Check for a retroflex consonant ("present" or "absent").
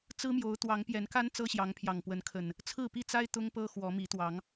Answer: absent